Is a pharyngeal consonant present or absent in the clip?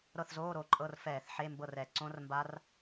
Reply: present